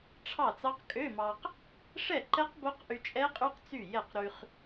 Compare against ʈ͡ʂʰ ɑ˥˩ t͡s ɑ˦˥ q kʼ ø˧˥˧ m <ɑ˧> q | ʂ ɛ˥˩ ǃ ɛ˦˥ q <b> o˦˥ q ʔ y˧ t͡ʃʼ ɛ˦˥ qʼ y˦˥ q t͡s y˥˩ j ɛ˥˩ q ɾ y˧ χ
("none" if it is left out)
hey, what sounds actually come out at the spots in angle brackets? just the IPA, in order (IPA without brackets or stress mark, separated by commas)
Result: ɑ˧, b